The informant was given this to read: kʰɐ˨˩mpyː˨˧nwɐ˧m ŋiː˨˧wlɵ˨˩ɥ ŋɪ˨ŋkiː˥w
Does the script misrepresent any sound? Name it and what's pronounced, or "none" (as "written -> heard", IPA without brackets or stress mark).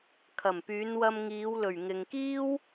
none